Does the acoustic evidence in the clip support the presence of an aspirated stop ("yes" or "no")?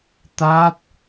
no